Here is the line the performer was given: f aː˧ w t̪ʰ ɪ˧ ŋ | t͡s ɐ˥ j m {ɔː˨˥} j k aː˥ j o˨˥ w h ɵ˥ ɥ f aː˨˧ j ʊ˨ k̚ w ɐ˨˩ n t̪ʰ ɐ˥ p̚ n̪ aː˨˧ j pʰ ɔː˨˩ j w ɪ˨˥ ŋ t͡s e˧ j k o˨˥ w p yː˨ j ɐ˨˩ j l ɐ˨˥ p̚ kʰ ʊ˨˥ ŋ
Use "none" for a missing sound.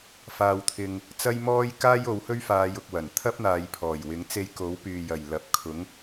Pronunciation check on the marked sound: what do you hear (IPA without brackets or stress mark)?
ɔː˥